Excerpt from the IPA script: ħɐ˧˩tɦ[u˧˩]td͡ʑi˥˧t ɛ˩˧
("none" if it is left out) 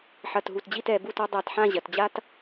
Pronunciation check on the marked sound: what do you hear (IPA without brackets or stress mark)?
u˧˩